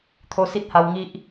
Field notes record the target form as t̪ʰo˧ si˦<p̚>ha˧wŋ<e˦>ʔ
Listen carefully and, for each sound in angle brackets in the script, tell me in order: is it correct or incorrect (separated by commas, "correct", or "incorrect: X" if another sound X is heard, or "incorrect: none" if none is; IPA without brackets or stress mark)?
incorrect: t̚, incorrect: i˦